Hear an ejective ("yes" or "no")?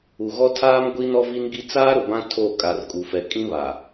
yes